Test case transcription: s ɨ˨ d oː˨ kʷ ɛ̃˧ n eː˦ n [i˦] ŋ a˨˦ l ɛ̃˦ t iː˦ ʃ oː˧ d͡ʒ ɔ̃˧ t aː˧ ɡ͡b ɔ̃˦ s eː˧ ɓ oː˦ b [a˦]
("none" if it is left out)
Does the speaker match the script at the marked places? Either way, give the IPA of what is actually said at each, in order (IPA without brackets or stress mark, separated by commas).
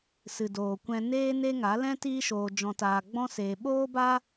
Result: e˦, a˦